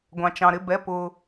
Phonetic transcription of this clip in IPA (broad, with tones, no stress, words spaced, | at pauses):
ɡʷɑ̃˩t͡ʃɑ̃˩ɾɪ˩˧˩bɛ˩˧˩ pʊ˩